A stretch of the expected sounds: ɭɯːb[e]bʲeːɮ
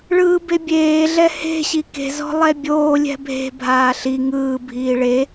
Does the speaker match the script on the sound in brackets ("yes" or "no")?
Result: yes